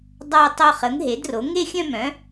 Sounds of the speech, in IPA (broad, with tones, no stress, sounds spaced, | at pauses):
dˤ a˥˧ ɪ̯ tˤ o˥˧ χ ə˩˥ ŋ ɦ e˩˥ d r o˩˥ ŋ e˥˧ xʲ œ̃˥˧ m œ̃˩˥